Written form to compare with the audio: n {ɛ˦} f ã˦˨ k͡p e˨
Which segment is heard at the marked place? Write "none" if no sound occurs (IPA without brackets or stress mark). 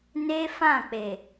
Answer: e˦